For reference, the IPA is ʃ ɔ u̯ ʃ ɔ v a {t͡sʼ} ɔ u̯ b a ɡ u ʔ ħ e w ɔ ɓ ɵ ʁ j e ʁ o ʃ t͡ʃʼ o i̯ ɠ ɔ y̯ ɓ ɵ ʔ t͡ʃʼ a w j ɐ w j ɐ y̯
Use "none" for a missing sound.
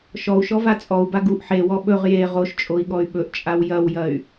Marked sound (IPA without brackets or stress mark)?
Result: t͡sʼ